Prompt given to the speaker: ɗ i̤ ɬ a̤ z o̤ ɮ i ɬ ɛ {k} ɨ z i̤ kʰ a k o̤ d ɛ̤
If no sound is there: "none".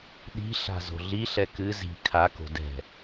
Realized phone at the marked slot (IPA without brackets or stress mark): k